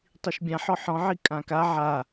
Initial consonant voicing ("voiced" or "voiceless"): voiceless